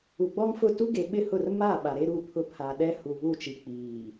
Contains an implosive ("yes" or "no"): yes